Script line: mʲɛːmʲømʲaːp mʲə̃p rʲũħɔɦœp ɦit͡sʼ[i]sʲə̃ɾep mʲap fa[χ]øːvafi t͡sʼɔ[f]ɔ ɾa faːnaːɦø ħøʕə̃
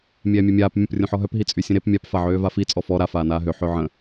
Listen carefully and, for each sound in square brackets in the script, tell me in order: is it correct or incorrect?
incorrect: y, incorrect: ʕ, correct

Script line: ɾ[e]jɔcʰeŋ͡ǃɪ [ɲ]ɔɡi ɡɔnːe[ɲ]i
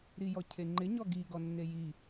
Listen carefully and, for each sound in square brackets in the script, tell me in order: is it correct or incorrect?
incorrect: i, correct, incorrect: j

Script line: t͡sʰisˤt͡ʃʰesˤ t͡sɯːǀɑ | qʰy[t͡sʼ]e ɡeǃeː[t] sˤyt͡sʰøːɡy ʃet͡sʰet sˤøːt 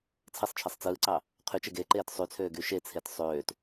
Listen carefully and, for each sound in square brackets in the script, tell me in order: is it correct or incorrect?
incorrect: t͡ʃ, correct

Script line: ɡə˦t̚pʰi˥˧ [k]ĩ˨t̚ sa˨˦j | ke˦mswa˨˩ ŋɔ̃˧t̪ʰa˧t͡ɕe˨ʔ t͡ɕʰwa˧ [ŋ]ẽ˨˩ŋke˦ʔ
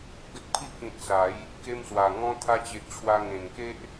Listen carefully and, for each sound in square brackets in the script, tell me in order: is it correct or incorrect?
correct, correct

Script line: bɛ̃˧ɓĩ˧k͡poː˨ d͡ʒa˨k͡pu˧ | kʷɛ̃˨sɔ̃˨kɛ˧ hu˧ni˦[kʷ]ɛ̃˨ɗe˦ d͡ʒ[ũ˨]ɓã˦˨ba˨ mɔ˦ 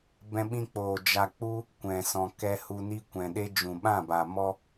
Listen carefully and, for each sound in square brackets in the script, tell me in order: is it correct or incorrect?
correct, correct

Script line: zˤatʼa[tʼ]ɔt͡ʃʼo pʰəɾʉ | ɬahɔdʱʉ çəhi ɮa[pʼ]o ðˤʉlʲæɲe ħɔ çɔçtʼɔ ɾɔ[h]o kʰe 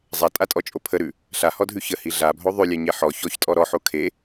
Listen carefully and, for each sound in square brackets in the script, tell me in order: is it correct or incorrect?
correct, incorrect: bʱ, incorrect: ħ

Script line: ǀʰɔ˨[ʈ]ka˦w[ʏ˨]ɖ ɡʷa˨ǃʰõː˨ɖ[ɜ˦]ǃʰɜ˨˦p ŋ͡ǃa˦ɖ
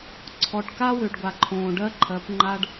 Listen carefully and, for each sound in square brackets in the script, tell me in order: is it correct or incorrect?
correct, correct, correct

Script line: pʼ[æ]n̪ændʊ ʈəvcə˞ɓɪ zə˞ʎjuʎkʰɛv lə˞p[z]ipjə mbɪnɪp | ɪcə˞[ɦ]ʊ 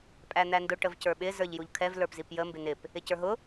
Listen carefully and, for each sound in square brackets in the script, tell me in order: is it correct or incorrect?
correct, correct, correct

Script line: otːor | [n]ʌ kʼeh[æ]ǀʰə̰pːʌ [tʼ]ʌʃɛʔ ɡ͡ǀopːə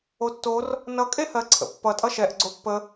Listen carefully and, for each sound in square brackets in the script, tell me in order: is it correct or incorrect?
correct, incorrect: ɜ, correct

